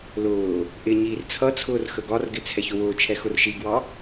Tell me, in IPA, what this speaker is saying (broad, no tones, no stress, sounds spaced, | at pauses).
l ʊː | ʔ ɪ ɲ iː r t͡sʰ ʌ t͡sʰ ʊː r x ə ɡ ɒ r ɡ ɪ t͡sʰ ɛ ç ʊ w ʊː t͡ʃʰ ɛ x ʊ r ʃ i ɡ w ɑ